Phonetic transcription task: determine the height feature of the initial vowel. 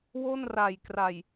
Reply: mid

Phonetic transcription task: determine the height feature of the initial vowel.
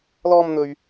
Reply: mid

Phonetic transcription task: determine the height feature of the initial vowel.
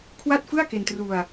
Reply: low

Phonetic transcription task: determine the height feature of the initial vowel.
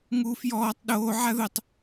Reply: high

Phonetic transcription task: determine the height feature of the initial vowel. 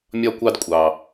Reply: low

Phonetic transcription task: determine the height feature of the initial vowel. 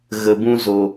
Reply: mid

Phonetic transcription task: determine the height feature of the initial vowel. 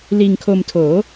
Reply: high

